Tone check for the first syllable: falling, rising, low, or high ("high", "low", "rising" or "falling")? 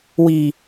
low